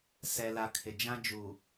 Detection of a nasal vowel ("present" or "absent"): present